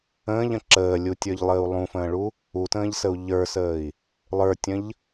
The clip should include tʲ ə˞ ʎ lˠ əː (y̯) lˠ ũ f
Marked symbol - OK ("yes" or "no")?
no